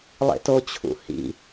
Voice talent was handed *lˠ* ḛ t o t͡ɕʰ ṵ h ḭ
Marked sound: correct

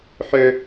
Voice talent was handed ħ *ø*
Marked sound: correct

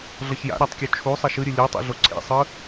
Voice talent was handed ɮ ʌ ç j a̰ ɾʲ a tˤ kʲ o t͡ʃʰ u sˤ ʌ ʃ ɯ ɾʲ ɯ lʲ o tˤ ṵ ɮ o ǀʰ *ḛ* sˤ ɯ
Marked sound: correct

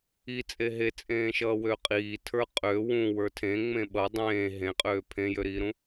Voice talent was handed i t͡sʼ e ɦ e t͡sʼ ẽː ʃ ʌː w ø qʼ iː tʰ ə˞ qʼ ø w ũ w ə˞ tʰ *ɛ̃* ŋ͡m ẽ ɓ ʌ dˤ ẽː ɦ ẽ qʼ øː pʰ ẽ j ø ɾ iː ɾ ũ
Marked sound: incorrect: ẽ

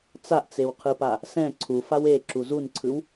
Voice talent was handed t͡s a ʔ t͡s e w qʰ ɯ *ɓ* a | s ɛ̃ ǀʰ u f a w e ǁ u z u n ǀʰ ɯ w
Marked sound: incorrect: p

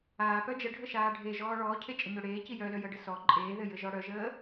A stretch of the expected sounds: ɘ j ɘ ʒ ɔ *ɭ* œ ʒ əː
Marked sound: incorrect: ɽ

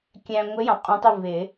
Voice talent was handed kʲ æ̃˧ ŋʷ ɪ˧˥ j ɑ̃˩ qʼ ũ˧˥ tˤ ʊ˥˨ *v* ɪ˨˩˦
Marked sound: correct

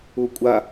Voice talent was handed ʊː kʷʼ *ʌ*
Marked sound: incorrect: a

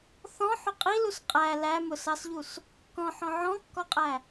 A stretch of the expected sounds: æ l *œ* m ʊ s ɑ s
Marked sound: incorrect: æ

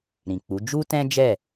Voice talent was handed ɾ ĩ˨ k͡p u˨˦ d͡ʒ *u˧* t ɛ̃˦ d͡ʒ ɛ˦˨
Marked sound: incorrect: u˦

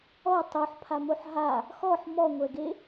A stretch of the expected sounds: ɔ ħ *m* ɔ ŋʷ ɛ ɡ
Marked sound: correct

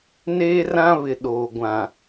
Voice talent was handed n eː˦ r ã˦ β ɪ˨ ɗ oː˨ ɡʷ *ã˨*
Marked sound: correct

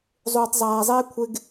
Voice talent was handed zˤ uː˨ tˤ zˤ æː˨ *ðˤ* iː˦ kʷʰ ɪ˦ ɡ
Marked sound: incorrect: zˤ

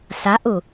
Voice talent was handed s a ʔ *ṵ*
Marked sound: incorrect: u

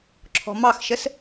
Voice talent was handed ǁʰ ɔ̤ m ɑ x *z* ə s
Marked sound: incorrect: ʃ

